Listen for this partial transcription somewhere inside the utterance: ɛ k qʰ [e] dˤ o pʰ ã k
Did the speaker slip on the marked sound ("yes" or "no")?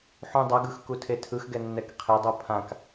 no